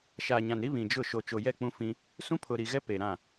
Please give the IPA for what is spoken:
ʃ aː˨ ɲ ã˨ n ɾ i˦ β ĩ˨ d͡ʒ ʊ˦˨ ʃ o˨ t͡ʃ o˨ j ɛ˦˨ k͡p ũ˦ f ĩ˦ | s ũ˦ pʰ ʊ˨ ɾ i˨ ɣ ɛ˦ p e˨ ɾ ã˦˨

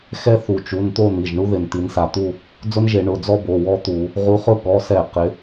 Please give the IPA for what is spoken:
x ɛ˥ θ u˧˩ t͡ʃ u˩˧˩ n t̪ o˥˧ n̪ i˩˧˩ ʒ ɳ u˥ ð ɪ˧˩ n t̪ i˨˦ n s a˧˩ t̪ u˥˧ | d͡z ʊ˥ n ʒ e˧˩˧ ɳ ʊ˩˧˩ d͡z ɔ˥ b o˩˧˩ w ɔ˥ t̪ u˧˩˧ | ʁ u˨˦ χ ʊ˥ ɠ ɔ˩˧˩ s ɛ˧˩˧ q ɪ˨˦

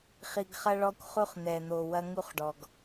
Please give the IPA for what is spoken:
χ i˨ ɡ χ ɐ˦ ɭ ɔ˦ kʷ χ u˦ χ n̪ ɛ˨ n̪ o˨ w ɐ˦ ŋ u˦ χ ɖ ɔ˨ ɡ

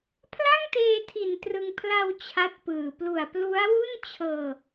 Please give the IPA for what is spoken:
pʰ l a˥˩ ŋ t eː˧ tʰ i˨˩ n t r ɯ˧ ŋ pʰ l a˧ w t͡ɕʰ a˦˥ t̚ p ɯː˨˩ p l u˨˩ a̯ p l u˦˥ a̯ w u˥˩ n t͡ɕʰ ɤː˧

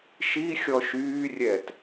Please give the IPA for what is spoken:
ʃ i xʲ ɔ ʃ yː rʲ ɛ t

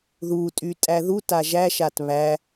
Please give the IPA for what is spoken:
ð u tʼ y tʼ æ ð u t a ʒ æ ʃ a t β æ

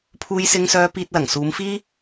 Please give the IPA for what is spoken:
pʰ uː˥ j s ɪ˥ ŋ s œː˥ p iː˧ t̚ l ɐ˨˩ ŋ s uː˨˧ m f iː˥

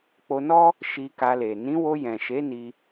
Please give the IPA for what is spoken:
k͡p o˧ n ɔ˦ | ʃ i˧ k a˧ l e˨ n ĩ˨˦ w o˧ j ɛ̃˨ ʃ e˨˦ n i˧

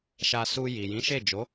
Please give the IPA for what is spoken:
ʃ a˧ s u˧ j i˨ j ĩ˨˦ ʃ e˦˨ d͡ʒ o˨˦

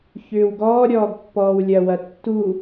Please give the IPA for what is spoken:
ç ʏː w ɡ ɔː ɾʲ ɔː ɡ pː ɔː w lʲ ɐ w ɐ tː u

